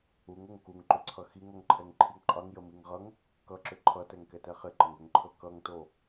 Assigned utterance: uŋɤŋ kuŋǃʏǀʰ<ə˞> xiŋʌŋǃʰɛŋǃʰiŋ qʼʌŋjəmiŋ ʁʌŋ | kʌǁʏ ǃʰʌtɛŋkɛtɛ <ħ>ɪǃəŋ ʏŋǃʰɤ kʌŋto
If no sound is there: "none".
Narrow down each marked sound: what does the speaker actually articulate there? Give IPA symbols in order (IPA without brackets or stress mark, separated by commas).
ʌ, χ